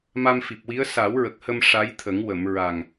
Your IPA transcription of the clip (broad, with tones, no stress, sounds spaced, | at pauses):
m a˧ m f i˨˩ p̚ w i˧˥ ə̯ s a˨˩˦ w ɹ ə˨˩ k̚ h ə˧ m ʂ a˧˥ j t̪ʰ ə˨˩˦ ŋ w ə˨˩˨ m ɹ a˨˩ ŋ